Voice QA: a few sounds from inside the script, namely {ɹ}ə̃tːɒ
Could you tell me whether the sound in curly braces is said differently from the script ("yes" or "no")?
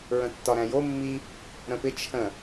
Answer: no